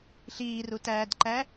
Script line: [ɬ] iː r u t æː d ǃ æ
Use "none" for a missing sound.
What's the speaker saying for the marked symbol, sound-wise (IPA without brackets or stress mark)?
ɬ